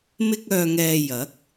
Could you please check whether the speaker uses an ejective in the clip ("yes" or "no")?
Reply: no